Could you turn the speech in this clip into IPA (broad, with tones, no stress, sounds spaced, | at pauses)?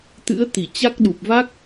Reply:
t̪ ɨ̰˧˥ ə̯ t̪ i˧˩ t͡ɕ a˦˥ k̚ ɗ u˨˩ p̚ v a˦˥ k̚